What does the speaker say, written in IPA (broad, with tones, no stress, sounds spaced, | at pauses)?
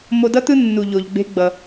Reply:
m o˧ d ʌ˥ t̪ ɯ˥ nː u˩ ʎ o˩ ʎ ɡ͡b e̤˧ ɡ͡b ʌ˩